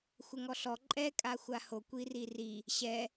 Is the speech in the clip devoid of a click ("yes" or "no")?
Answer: no